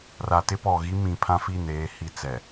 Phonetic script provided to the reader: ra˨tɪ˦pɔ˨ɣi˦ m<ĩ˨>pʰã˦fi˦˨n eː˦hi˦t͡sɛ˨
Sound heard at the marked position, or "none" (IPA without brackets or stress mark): ĩ˨